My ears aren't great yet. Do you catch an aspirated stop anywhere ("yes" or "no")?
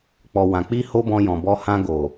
no